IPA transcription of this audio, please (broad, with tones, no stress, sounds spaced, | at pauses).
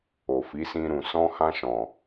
o˨ f i˨˦ s ĩ˧ ɾ ũ˨ s ɔ̃˧ h ã˧ ʃ ɔ̃˨